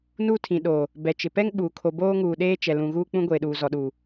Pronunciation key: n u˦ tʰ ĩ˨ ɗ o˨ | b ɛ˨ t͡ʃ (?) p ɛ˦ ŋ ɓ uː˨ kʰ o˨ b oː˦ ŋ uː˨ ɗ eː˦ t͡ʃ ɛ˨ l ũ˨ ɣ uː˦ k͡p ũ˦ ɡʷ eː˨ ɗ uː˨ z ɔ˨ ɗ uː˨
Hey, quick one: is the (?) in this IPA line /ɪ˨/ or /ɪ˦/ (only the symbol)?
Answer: ɪ˨